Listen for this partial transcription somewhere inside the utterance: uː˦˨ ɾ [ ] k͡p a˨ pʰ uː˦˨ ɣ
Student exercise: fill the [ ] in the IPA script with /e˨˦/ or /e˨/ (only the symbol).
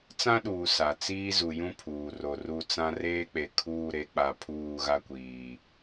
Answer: e˨˦